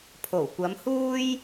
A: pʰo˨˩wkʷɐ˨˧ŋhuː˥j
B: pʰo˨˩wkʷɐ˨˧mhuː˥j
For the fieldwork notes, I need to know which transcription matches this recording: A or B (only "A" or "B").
B